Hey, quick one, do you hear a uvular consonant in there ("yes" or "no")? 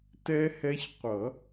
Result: yes